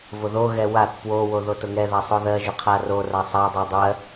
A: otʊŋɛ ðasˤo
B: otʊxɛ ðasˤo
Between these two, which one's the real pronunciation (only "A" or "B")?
A